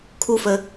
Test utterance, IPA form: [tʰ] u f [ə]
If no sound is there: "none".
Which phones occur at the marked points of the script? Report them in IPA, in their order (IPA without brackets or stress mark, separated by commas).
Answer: kʰ, ə